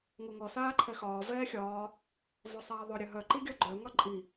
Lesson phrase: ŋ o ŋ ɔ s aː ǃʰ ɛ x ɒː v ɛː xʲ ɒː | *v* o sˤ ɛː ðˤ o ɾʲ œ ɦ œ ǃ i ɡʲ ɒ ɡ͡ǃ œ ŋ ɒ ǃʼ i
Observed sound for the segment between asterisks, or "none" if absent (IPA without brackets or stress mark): v